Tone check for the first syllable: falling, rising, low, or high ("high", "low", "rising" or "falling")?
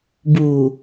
low